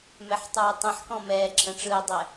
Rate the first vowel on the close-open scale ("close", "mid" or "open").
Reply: mid